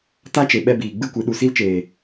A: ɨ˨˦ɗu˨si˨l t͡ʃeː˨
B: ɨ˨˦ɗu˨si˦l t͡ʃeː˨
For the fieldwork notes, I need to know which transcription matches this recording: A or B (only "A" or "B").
B